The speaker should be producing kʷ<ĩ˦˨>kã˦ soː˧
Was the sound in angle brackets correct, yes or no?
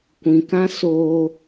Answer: no